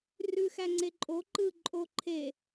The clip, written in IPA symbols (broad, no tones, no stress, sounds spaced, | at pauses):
r ʉ x æ ŋ͡ǀ e ǃʼ o ǃ ɯ ǃʼ o ǃʰ e